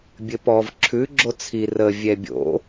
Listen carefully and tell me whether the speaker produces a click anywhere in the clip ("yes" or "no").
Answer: yes